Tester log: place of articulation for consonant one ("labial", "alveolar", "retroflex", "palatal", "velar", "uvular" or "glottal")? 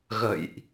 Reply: velar